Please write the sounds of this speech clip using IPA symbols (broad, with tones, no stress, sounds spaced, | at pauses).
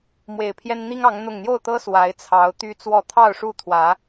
m w e˨˩ ɪ̯ pʰ j ɛ˦ n n̪ i˦ ŋ ɑ˨˦ ŋ n̪ ʊ˨˩ ŋ n̪ j o˥˨ ʊ̯ t̪ ɤ˦ s w a˨˦ ɪ̯ t͡sʰ ɑ˨˦ ʊ̯ t̪ y˦ t͡s w ɔ˥˨ t̪ʰ ɑ˥˨ ʊ̯ ʂ u˥˨ t̪ʰ w ä˨˦